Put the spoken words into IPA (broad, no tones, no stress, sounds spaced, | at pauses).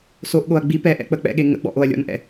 s o ʔ ɠ o ɐ̯ ɡ͡b i p ɛ ʔ ɛ̰ k͡p ə k͡p ɛ̰ ɠ e ŋ ə̰ ɡ͡b ɔ̰ ʔ o ɐ̯ lʲ ɔ̰ n ʔ ɛ̰